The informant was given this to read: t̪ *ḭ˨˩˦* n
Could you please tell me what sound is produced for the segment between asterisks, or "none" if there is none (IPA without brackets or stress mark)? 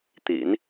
ḭ˨˩˦